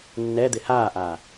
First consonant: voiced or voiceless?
voiced